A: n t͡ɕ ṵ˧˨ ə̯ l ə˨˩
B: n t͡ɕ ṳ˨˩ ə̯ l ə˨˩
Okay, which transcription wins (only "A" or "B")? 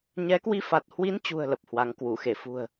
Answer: B